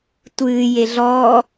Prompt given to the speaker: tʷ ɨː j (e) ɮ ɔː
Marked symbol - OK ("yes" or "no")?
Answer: yes